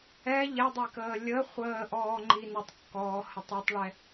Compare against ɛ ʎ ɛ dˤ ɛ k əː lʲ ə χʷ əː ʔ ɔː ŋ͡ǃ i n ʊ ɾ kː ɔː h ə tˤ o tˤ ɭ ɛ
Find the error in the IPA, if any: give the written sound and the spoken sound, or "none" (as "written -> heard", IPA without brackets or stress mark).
ɾ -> tˤ